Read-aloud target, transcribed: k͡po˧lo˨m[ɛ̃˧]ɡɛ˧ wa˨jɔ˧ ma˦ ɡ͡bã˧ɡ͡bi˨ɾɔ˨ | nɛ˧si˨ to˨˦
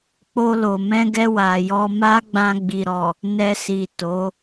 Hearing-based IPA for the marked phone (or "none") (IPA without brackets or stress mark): ɛ̃˧